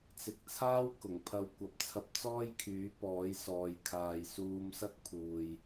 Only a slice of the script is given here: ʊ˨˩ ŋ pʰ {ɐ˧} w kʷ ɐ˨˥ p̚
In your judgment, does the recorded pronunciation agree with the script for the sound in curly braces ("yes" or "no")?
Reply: yes